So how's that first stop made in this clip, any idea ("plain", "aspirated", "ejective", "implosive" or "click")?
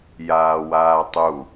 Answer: plain